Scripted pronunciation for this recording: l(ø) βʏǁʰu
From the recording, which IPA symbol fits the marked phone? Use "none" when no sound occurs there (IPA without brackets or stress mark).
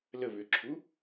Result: ə